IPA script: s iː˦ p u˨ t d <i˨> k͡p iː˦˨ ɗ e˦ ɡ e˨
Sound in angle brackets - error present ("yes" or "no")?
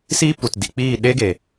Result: no